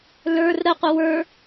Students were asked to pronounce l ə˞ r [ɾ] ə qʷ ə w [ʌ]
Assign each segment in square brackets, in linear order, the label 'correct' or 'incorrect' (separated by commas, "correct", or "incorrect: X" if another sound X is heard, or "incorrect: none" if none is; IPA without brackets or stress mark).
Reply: correct, incorrect: ə˞